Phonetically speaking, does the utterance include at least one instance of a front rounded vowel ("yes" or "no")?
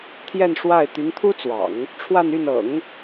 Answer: yes